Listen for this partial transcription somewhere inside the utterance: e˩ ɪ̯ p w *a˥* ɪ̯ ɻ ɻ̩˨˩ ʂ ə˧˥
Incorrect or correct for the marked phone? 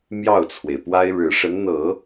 correct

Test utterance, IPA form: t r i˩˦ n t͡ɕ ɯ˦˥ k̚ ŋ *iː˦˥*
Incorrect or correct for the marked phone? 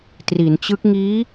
correct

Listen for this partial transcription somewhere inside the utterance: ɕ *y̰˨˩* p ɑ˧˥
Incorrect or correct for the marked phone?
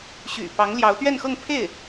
correct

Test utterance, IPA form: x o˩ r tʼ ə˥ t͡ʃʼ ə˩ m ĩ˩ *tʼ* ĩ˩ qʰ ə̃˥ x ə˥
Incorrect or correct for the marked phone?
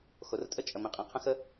incorrect: qʼ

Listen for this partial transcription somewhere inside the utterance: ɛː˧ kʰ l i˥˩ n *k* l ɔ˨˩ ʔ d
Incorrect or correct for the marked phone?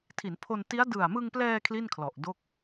incorrect: kʰ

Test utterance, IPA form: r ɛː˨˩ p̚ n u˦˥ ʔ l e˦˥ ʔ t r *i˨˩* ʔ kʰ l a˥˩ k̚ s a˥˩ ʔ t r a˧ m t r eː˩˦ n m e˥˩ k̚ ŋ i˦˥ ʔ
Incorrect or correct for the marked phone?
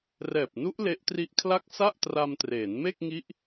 incorrect: i˦˥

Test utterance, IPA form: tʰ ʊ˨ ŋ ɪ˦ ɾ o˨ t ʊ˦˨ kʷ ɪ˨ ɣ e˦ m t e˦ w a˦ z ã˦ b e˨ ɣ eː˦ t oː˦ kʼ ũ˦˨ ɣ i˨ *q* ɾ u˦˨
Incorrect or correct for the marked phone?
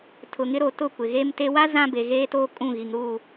incorrect: ŋ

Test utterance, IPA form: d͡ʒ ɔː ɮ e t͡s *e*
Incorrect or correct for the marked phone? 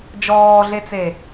correct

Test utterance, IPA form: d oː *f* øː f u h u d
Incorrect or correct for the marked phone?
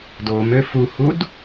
incorrect: m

